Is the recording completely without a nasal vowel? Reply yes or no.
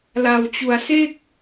yes